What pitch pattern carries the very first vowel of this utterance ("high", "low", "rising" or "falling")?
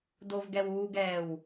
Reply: low